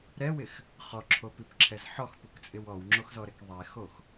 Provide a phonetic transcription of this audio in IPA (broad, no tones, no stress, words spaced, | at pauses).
ɾɛwɪx | χɔǁʰopipǁʰɛz ħɔxpukt͡sʼɪw ɔwŋ͡ǁoxzɔɾɛk ðˤɛxox